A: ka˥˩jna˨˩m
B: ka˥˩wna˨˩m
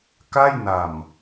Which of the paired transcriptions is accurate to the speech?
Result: A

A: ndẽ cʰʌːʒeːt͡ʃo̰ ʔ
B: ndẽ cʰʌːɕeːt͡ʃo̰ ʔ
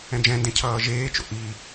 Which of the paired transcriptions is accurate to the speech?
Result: A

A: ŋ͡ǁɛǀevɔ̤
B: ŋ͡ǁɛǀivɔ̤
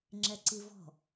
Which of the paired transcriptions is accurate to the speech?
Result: B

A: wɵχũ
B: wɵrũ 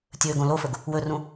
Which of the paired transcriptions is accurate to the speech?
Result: B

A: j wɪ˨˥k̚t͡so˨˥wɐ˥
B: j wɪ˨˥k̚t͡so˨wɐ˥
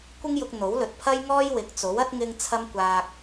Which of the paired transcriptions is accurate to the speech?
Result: A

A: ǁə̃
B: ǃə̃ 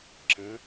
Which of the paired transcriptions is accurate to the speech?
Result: A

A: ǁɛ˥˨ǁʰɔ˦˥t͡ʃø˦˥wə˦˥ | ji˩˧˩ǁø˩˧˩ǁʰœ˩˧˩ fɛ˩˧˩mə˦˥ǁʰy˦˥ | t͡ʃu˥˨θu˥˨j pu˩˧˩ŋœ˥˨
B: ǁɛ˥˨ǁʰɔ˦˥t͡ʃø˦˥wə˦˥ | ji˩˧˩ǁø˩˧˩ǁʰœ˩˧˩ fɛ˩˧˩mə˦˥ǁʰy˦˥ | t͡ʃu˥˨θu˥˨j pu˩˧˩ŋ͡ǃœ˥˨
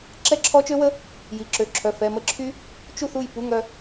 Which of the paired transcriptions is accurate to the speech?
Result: A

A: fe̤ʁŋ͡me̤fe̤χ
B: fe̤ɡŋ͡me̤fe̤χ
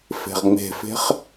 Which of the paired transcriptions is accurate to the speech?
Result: A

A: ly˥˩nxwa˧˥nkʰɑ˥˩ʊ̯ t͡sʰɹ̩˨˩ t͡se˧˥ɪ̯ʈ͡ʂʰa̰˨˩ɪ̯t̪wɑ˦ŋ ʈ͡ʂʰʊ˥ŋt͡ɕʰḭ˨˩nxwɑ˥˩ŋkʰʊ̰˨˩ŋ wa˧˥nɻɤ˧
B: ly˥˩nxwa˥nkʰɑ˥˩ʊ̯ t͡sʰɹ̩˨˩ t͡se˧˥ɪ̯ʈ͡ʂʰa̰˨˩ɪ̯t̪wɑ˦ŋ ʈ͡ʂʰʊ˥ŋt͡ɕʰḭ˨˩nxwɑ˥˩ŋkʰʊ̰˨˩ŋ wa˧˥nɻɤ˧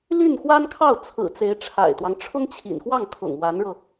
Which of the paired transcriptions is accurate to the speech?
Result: B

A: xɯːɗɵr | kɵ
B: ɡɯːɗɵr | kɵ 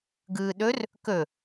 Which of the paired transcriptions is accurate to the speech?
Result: B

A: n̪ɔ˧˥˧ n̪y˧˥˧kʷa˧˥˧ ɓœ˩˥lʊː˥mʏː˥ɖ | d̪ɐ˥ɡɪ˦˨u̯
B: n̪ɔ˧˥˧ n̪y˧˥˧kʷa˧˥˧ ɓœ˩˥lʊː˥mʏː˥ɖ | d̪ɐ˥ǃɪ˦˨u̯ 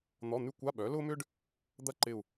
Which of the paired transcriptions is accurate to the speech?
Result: B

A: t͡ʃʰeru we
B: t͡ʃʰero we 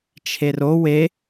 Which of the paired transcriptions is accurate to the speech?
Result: B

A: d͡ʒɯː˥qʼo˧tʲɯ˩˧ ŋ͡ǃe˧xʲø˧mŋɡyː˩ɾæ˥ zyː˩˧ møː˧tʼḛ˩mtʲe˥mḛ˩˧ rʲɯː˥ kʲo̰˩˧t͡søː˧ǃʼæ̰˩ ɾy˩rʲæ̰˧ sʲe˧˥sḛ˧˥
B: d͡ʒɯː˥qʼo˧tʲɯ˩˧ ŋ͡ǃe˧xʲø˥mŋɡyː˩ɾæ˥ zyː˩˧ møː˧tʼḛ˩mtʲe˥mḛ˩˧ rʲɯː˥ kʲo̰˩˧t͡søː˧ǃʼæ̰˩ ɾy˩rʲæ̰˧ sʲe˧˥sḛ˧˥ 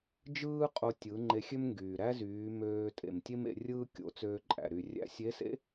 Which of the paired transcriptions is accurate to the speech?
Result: B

